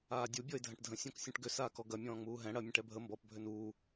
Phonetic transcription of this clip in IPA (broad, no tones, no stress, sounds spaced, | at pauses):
aː dʲ u bʲ ɔ ɪ̯ dʱ ɐ̃ ʈ dʱ ə̃ sʲ ɔ̃ k sʲ ũ ʈ ɡ ʏ s aː k ɔ ɡ ɐ mʲ ɔ̃ː ŋ͡m uː ɦ ɛ̃ ɽ ɐ mʲ ə̃ ʈ ɛ bʱ ə m b ɔ p bʱ ʏ n uː